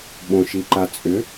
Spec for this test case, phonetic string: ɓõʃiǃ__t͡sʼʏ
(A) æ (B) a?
B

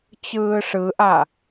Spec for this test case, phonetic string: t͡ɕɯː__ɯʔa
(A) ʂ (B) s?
A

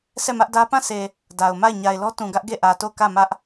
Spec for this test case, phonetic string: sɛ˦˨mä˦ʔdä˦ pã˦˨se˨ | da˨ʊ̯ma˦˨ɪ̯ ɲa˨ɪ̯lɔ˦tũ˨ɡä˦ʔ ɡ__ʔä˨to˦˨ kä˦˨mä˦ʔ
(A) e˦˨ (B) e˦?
A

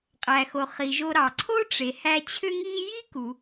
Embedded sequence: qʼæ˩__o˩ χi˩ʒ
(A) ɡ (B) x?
B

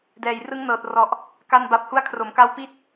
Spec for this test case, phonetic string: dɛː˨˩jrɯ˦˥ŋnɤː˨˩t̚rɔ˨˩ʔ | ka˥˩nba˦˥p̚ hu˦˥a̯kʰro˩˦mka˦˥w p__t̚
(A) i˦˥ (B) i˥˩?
B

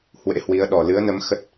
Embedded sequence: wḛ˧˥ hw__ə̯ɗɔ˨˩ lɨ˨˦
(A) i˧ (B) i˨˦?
B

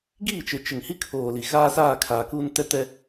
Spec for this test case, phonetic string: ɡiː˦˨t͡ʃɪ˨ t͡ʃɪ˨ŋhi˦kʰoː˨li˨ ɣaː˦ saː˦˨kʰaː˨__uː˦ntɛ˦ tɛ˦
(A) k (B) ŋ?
A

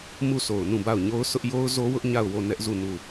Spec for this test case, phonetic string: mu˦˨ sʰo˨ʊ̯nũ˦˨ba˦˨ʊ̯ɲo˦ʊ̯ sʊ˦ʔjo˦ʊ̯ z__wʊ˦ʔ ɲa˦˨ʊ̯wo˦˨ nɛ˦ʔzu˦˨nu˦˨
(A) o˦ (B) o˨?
A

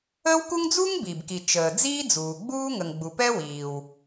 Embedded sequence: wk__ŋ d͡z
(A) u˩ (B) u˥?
B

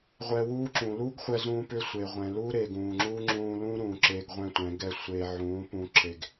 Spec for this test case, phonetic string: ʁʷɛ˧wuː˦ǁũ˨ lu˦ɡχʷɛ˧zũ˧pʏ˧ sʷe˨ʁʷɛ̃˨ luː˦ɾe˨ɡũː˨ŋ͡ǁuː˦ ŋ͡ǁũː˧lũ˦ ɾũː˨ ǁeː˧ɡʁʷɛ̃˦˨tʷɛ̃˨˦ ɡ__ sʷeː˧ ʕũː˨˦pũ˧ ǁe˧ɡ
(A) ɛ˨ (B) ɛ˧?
B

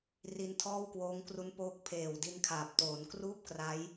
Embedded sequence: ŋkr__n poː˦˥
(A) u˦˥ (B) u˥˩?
A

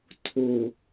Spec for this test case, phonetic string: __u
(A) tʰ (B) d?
A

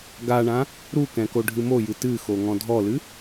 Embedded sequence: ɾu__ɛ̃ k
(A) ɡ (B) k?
B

